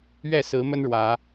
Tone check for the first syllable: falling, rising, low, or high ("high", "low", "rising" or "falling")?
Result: falling